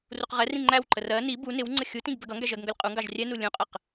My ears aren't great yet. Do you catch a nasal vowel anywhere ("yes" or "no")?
yes